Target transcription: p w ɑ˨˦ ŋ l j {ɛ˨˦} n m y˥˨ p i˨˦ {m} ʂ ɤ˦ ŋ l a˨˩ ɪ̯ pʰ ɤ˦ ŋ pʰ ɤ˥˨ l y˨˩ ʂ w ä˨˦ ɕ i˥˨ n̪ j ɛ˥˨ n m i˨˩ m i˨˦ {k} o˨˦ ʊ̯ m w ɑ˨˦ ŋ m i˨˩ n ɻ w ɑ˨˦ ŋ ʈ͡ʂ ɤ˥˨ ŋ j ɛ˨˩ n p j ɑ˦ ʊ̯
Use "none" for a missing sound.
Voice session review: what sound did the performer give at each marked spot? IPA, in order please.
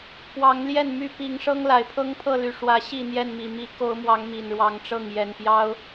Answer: ɛ˥˨, ŋ, k

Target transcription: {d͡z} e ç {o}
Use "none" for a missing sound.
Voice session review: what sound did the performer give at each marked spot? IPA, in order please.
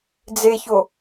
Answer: d͡z, o

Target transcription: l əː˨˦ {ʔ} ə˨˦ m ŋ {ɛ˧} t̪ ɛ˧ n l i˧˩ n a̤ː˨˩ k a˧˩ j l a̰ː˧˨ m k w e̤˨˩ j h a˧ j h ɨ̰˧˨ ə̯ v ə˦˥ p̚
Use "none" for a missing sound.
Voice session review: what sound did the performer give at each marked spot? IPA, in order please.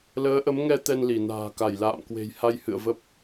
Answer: ʔ, ɛ˧

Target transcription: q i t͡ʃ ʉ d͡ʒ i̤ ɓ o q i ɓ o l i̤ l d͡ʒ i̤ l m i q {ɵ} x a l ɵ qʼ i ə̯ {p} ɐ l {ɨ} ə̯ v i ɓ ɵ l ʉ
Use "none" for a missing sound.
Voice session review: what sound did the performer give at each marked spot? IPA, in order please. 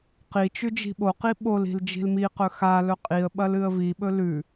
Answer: ɵ, ɓ, ɨ

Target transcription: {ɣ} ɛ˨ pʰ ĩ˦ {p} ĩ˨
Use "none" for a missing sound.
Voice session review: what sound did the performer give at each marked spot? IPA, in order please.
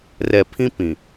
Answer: r, p

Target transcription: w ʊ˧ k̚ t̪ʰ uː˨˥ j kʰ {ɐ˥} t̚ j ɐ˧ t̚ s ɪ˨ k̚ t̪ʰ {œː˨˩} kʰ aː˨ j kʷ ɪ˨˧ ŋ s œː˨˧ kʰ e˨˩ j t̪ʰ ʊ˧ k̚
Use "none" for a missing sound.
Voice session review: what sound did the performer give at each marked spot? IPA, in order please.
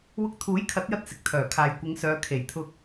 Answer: ɐ˨˥, œː˨˩

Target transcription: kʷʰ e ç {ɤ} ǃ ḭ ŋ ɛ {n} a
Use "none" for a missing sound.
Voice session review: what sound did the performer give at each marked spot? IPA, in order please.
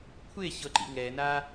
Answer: ɤ, n

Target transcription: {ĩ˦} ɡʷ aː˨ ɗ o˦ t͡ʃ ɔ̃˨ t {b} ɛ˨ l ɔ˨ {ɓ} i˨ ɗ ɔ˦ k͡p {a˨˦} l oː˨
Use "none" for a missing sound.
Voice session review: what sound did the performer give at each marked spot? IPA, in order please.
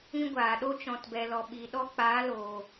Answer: ĩ˦, b, ɓ, aː˨˦

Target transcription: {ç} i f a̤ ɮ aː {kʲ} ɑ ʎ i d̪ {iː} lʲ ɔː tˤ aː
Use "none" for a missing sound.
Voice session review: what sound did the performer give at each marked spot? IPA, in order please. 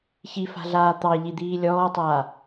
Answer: ç, t̪, iː

